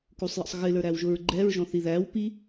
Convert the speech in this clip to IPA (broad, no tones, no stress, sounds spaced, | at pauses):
k u sˤ j ə̰ sˤ ɣ ɪ l ə˞ ɾ æ w ʒ ʊ ɹ ɡ͡ǃ ɛ ɹ ʒ ɔ̃ θ i ð æ w p i